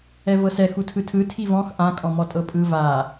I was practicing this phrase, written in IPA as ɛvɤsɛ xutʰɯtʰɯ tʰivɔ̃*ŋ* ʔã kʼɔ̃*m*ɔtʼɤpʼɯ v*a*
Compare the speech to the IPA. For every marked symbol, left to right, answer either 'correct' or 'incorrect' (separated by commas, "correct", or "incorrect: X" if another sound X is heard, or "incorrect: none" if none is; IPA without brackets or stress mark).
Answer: incorrect: x, correct, correct